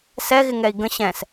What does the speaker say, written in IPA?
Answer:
s ɛ ɣ ɪ ŋ ɛ i̯ ɡ ə̃ ɕ ɛ̃ s

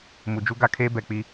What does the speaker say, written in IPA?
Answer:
m u˨ d͡ʒ u˦ ɡ a˦ kʰ eː˦ b ɛ˨ k͡p i˦

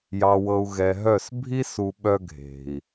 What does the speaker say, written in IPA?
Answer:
j ɑ˨ w ɤ˨ u̯ ɣ ɛ˨ ɦ œ˦˨ s bʱ i˦ s u˨ ɓ œ˦ ɡʱ e̤˨ i̯

